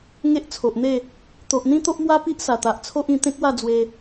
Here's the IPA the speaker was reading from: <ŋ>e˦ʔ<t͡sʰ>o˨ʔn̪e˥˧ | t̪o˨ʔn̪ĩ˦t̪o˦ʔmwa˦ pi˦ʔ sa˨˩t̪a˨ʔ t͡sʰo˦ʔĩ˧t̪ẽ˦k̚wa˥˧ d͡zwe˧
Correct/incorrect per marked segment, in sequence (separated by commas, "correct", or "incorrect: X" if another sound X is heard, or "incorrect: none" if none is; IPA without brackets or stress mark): correct, correct